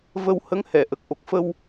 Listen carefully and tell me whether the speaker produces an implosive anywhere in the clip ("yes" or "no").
no